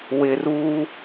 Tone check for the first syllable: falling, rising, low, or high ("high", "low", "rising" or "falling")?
low